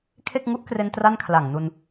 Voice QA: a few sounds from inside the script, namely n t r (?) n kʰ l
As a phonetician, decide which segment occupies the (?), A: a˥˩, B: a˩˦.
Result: A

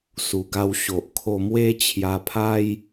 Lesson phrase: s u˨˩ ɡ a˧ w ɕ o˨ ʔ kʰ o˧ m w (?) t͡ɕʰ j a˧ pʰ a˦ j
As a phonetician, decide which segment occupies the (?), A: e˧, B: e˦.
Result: B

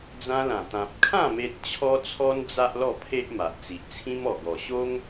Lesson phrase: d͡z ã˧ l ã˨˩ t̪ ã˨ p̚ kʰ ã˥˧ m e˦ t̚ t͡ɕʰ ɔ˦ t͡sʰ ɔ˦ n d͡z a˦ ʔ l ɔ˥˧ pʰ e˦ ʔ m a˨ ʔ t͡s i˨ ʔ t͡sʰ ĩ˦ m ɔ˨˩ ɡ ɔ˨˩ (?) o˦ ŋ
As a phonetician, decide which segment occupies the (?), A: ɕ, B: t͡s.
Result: A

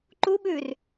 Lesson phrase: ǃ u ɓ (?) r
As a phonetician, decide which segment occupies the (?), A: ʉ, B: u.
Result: A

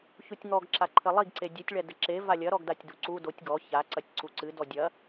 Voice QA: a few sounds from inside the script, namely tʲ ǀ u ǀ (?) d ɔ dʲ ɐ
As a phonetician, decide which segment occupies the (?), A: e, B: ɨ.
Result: B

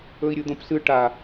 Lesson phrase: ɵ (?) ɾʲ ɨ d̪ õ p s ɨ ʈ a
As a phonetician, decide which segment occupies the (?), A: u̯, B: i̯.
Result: B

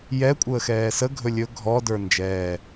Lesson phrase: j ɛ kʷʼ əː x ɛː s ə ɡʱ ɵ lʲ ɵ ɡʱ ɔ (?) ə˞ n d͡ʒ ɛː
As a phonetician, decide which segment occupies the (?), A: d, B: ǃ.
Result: A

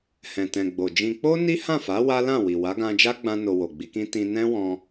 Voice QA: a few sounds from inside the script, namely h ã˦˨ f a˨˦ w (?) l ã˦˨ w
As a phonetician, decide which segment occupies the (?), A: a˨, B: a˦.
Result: B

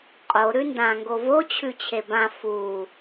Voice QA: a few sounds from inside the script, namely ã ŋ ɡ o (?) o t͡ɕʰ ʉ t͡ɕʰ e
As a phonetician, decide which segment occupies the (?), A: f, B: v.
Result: B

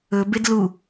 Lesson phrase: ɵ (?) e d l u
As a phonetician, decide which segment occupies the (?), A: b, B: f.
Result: A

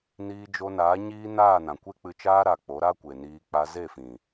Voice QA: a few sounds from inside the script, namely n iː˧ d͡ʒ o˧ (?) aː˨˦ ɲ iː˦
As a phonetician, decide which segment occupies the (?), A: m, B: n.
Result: B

